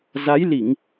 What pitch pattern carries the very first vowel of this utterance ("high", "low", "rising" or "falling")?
rising